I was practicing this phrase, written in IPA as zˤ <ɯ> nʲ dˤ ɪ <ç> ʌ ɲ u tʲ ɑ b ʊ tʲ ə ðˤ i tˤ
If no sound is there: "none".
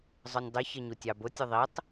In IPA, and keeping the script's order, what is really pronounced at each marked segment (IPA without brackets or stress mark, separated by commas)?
ʊ, ç